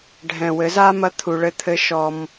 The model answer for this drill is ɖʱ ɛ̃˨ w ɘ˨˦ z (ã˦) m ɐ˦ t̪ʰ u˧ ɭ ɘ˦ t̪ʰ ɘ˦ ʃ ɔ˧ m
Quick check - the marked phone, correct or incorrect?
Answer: incorrect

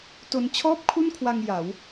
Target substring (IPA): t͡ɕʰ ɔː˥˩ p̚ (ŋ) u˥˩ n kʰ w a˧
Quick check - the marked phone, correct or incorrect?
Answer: incorrect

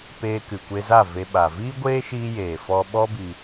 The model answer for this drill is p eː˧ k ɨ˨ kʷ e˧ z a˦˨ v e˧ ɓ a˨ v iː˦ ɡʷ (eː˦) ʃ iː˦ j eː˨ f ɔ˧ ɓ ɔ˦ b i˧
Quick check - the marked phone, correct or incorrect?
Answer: correct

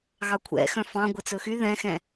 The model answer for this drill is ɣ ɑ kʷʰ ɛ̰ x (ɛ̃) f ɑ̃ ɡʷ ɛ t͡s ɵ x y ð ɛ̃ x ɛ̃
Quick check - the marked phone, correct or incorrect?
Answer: incorrect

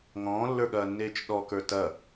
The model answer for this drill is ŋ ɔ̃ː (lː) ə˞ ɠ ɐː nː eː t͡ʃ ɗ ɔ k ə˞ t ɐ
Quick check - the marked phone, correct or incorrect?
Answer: correct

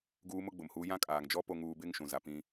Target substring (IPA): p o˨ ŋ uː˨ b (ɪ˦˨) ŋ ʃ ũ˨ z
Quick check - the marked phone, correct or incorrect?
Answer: correct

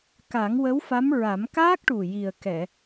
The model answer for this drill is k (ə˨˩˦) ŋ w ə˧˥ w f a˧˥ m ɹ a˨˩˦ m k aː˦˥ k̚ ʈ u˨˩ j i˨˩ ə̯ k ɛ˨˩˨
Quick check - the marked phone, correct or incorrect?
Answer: incorrect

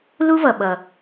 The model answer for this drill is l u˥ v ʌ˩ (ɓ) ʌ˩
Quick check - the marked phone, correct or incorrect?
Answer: correct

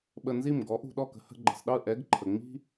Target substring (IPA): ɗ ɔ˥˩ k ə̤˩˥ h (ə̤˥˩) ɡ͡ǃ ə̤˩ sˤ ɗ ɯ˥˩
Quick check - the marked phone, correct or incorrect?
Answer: incorrect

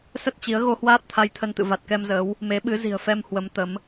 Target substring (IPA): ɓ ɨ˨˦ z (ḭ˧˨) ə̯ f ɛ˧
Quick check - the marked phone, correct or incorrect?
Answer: incorrect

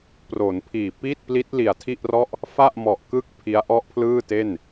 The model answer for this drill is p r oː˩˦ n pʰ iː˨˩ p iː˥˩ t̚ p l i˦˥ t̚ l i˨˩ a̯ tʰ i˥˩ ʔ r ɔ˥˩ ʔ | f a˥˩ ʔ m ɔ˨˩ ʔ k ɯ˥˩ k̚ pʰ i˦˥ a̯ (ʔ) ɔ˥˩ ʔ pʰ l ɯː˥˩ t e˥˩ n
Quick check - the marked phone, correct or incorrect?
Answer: correct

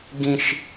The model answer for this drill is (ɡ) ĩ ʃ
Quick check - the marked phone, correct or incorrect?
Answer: correct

